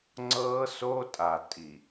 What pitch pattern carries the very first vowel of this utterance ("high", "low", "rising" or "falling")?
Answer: high